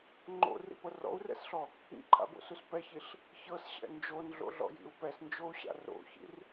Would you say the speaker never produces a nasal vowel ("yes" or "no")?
yes